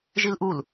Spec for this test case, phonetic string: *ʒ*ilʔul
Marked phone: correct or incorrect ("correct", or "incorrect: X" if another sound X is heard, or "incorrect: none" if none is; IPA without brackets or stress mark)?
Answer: correct